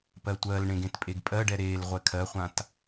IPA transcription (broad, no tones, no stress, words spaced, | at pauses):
pɜtʷɜlɳẽɡ ẽtpʼeɡpʼɜɖɛ ɾel ʁʷɛkʰɜχʷãt